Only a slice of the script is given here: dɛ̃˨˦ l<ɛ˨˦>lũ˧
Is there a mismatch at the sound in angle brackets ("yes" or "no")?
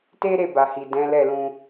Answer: yes